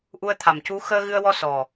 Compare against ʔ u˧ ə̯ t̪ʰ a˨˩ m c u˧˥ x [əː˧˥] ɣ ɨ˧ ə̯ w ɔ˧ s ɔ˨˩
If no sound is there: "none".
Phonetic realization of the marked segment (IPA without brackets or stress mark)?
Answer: əː˧